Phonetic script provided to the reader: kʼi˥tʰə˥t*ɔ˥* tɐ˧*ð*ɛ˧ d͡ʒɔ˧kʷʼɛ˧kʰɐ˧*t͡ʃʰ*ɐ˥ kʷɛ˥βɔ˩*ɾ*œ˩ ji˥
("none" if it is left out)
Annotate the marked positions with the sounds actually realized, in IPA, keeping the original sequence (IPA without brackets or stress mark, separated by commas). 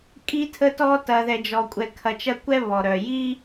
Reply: ɔ˥, ð, t͡ʃ, ɾ